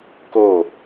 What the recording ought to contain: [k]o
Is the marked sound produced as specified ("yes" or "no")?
yes